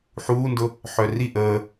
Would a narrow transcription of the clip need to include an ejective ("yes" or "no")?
no